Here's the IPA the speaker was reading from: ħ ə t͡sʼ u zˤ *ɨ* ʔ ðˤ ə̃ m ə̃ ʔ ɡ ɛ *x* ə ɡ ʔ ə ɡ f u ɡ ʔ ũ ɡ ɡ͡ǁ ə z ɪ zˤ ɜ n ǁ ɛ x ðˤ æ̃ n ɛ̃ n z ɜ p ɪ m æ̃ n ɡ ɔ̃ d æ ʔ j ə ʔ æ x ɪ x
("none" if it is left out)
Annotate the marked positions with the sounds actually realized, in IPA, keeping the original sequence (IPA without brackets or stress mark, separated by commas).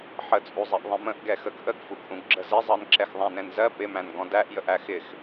ɛ, x